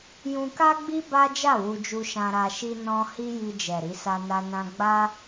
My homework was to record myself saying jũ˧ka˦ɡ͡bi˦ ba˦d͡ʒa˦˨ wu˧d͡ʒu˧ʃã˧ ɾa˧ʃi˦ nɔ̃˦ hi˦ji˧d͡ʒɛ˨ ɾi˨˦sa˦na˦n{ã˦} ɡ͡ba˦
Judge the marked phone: correct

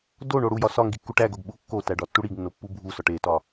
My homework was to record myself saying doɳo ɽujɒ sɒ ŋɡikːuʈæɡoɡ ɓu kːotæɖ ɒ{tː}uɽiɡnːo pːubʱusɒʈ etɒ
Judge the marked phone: correct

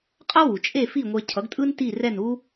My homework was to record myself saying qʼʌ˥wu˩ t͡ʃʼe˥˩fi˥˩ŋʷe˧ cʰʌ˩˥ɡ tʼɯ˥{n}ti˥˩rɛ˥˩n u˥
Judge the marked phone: correct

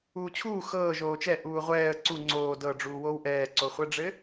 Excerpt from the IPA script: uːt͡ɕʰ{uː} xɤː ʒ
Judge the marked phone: correct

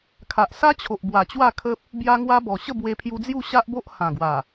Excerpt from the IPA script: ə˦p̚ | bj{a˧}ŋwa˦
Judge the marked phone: incorrect: a˦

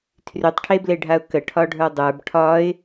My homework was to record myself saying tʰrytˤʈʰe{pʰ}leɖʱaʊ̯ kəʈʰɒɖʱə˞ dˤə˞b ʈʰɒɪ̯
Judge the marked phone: incorrect: b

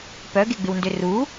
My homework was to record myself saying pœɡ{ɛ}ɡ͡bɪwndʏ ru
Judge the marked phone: incorrect: e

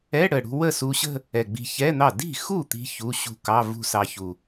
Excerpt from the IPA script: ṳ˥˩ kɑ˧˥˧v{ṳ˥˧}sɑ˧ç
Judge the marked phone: correct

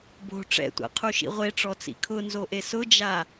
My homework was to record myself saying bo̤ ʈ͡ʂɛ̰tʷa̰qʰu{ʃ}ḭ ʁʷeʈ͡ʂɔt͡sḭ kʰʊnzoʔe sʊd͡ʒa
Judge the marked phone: correct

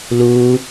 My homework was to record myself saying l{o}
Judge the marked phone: incorrect: u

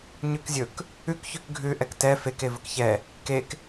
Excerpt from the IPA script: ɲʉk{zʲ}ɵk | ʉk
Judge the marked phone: correct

